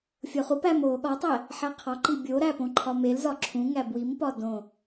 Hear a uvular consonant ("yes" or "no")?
yes